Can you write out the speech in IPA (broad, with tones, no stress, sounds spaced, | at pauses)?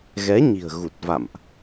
ɣ ɛ˨˦ ɲ i̤˨˩ ə̯ ɣ u˨˩ t̚ v a̰˧˨ m ʔ